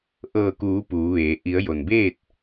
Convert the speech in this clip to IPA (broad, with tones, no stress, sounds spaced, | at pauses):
ʔ ɤː˧˩ k uː˩˧ p uː˩˧ ʋ eː˩˧ ʔ i˩˧ ə̯ j o˩ n b eː˥˨ t̚